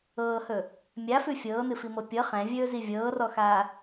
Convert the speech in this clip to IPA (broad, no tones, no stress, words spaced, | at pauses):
ɤːhɵ | mʲafʉ fʲɤːnɨfimɤ pʲɤ χɛ̃vʲɵːzi vʲɤːrɔxaː